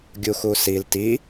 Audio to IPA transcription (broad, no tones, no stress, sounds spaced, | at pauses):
ɡʲ u x u s i l t i